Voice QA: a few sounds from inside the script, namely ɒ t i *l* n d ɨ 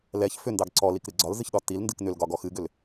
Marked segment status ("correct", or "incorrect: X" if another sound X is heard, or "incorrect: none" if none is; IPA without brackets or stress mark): correct